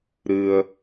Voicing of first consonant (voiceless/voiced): voiced